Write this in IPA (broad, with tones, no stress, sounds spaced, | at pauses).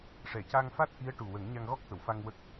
ʂ ɛ˨˩˨ c a˧ ŋ f a˦˥ t̚ ʔ i˧˥ ə̯ ʈ u˨˩ w ə˨˩˦ ŋ ɲ a˧ ŋ ɣ ɔ˦˥ k̚ t̪ ə˨˩˨ w f a˧ ŋ w ə˦˥ k̚